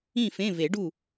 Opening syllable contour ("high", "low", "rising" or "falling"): falling